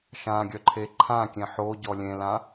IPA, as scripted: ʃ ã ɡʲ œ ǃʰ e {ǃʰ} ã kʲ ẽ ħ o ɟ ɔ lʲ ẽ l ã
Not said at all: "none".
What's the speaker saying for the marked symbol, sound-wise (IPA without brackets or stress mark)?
ǃʰ